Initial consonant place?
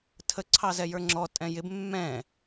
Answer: alveolar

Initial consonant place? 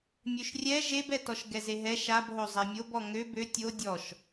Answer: labial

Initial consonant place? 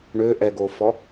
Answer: retroflex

